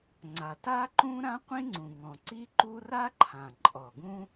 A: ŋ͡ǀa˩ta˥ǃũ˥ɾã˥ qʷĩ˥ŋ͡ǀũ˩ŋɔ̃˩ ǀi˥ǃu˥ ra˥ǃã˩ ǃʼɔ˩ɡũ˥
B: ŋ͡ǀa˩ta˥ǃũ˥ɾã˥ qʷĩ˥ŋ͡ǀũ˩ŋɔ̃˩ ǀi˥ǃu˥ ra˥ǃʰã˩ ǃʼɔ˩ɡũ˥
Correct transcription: B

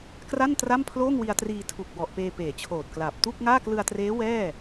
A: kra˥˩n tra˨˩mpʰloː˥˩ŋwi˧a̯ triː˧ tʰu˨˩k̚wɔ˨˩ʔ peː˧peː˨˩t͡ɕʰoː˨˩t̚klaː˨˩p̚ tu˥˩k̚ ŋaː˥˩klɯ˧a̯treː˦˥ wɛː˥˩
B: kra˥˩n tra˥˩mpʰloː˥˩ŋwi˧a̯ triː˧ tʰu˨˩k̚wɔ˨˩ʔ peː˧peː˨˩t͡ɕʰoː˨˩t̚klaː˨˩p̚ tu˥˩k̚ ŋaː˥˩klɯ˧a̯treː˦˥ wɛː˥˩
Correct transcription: B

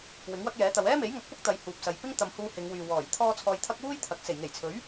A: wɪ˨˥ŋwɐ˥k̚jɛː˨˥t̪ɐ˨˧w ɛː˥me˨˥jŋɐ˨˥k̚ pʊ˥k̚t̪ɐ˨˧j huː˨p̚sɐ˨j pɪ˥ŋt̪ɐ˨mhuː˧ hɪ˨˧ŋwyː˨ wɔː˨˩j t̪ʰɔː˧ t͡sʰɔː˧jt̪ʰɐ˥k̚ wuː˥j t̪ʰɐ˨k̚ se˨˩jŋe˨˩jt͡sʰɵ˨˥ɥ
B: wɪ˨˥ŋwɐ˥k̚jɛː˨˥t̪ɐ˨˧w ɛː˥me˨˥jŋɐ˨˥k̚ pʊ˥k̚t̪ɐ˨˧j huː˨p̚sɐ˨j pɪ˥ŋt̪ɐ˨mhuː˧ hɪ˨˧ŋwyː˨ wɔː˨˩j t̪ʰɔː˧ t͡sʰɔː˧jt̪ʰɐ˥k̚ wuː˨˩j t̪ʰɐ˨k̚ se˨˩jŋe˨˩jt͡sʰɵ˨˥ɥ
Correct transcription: A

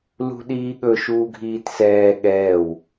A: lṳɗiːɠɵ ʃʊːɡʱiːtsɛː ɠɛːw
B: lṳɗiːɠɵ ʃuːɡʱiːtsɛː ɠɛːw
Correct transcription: B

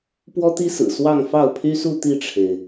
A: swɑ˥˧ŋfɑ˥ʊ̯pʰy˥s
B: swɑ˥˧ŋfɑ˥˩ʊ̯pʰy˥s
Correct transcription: B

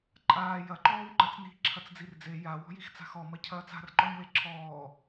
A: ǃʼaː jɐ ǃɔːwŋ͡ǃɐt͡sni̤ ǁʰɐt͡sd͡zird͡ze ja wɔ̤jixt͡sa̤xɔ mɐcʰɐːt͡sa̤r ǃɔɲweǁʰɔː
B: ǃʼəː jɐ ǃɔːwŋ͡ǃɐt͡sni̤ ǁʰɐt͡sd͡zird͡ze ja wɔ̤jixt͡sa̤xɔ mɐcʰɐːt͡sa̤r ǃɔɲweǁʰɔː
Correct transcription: A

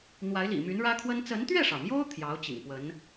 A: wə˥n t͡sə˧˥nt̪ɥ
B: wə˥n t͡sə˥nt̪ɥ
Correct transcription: A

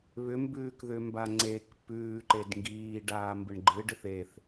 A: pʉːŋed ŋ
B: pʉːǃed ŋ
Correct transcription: B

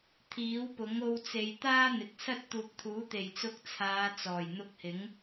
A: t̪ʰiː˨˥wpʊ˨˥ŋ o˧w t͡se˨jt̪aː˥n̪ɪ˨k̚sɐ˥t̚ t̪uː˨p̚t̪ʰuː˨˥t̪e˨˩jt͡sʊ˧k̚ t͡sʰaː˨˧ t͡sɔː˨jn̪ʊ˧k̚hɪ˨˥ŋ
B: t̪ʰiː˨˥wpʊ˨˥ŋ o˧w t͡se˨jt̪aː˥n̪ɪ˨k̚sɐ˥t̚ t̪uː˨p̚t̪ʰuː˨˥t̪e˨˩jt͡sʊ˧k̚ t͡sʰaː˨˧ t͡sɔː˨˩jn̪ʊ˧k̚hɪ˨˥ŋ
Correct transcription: B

